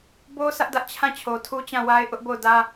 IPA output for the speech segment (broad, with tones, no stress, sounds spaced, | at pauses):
b o˦ sʰ ä˦ ʔ d ä˦ ʔ t͡ɕʰ ã˦˨ t͡ɕʰ o˨ tʰ u˦ t͡ɕ ã˦˨ w a˦ ɪ̯ ʔ ʊ˦ ʔ b o˦˨ ʊ̯ d ä˦